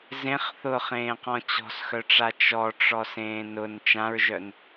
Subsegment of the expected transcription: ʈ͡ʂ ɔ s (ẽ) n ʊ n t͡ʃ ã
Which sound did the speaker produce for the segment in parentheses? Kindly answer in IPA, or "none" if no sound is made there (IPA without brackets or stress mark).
ẽː